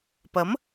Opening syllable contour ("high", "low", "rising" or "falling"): rising